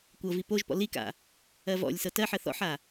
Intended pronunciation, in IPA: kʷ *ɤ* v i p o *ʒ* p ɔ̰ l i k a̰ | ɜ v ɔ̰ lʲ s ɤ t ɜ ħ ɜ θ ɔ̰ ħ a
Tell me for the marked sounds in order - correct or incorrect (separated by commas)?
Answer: correct, correct